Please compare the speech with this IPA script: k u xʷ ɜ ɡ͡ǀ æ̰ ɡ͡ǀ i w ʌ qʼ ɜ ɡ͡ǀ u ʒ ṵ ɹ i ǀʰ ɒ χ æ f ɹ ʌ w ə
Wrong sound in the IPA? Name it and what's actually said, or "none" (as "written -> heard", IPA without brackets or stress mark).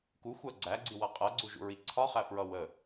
æ̰ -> æ